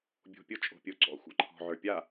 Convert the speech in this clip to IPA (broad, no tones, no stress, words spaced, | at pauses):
bʲo̤ pʲʊ t͡ʃʼo̤pʲʊ ǀɔ̰ xʷa̰ǃʰɔ̤ʕə˞ pʲa